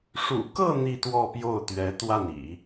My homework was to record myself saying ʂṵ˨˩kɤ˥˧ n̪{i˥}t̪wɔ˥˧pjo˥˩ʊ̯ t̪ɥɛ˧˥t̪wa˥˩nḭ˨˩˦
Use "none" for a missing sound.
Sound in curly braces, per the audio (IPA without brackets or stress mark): i˥˧